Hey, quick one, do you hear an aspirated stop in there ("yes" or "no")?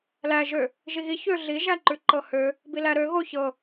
no